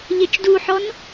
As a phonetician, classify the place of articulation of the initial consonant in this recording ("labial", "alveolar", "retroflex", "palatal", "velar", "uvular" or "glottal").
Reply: palatal